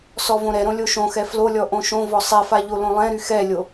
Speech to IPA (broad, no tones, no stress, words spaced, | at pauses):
sɔvõɾɛɾõ lʲoʃõxɛ flolʲɔ ʔõʃõvɔ sˤefa ʎolõlˠɛ̃ɾy xɛlʲo